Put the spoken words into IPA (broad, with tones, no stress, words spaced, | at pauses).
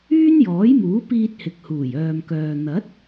yː˥njɔː˨˥jmuː˨˥ piː˧t̚hɪ˨k̚huː˨˩j œː˨mkœː˨ n̪ɐ˨˥t̚